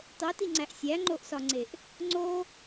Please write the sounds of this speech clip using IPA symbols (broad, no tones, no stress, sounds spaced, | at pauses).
tˤ o t i ŋ͡ǀ æ ʔ sʲ æ ŋ͡ǃ o ʔ s ɒ ŋ͡ǀ e ʔ | ŋ͡ǀ o